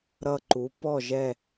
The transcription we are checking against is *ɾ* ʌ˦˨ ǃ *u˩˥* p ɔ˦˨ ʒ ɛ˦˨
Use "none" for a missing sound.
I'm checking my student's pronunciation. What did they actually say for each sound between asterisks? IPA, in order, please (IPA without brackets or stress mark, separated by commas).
ɾ, u˩˥